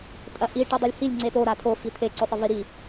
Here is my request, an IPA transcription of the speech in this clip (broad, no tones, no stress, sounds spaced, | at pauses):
tʼ ɐ ʔ i ʈ u dˤ ɵ lʲ h i lʲ ŋ͡ǀ e t o ɾ a tʰ o f i t̪ʰ e ǀ ɵ sˤ ɨ v i ɾ i